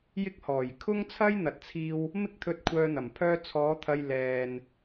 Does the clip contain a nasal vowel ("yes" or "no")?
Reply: no